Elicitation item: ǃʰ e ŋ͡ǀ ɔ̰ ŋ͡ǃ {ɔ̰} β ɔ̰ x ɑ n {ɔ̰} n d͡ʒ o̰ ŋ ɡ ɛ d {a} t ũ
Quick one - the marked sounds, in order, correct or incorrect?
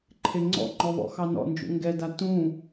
incorrect: ɔ, correct, correct

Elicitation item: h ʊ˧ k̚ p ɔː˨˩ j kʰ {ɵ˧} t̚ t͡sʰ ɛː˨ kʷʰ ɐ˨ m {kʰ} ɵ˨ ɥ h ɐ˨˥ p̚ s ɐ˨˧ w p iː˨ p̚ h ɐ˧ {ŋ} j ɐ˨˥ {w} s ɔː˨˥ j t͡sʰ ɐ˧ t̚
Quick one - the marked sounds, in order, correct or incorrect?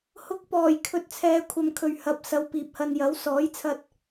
incorrect: ɵ˨, correct, incorrect: n, correct

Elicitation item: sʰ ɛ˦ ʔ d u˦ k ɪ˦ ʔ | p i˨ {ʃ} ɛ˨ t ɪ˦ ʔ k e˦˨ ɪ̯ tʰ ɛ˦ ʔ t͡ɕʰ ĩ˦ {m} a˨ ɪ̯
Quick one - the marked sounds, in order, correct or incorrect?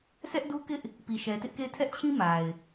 correct, correct

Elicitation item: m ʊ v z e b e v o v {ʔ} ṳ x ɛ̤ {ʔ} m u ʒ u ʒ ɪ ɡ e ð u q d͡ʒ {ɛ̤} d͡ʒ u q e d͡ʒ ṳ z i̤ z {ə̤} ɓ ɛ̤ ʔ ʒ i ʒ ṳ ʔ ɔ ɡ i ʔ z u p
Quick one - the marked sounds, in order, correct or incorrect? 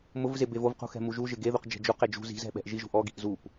incorrect: q, incorrect: none, correct, incorrect: ɛ̤

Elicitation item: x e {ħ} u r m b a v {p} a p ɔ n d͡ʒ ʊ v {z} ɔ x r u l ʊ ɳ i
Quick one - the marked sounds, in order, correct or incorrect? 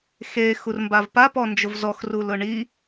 incorrect: x, correct, correct

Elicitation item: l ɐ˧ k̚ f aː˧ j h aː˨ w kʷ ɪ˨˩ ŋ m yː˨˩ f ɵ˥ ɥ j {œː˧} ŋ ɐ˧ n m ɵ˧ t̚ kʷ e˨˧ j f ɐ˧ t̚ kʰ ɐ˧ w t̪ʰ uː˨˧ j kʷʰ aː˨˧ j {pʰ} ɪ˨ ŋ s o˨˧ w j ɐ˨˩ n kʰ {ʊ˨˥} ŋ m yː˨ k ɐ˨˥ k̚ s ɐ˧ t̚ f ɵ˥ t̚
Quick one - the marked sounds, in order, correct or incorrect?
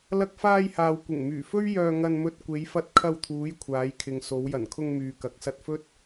correct, incorrect: kʰ, incorrect: ʊ˧

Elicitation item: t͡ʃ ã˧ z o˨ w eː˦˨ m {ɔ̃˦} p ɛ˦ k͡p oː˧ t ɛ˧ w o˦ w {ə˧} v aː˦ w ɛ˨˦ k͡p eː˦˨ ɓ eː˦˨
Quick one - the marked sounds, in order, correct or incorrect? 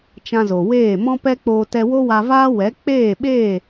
correct, incorrect: a˧

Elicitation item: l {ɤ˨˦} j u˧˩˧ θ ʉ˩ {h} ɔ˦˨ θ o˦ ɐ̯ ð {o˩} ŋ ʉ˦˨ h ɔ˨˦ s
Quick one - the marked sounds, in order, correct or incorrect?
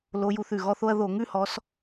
incorrect: o˨˦, incorrect: ɣ, incorrect: o˧˩˧

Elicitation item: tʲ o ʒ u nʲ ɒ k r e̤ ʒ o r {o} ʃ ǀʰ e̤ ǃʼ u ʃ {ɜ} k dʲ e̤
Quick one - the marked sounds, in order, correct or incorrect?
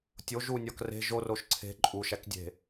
correct, incorrect: æ

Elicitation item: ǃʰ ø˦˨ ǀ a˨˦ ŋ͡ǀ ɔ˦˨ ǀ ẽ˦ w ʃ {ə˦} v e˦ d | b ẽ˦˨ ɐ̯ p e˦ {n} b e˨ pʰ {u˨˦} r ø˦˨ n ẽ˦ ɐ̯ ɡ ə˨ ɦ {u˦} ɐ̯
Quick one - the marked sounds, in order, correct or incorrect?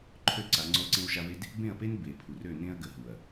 incorrect: a˦, correct, incorrect: u˨, incorrect: u˨

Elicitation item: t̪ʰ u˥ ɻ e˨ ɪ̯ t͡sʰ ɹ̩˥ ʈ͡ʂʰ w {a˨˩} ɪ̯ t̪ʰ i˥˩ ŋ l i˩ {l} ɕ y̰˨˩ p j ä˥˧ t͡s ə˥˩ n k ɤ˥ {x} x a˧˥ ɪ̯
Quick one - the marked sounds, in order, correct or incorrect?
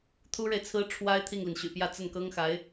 incorrect: a˥, incorrect: n, incorrect: ŋ

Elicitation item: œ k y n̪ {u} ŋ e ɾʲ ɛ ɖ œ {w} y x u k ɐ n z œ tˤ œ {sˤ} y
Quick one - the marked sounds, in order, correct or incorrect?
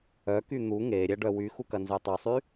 correct, correct, correct

